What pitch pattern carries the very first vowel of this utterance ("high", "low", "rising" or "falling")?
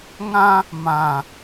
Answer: high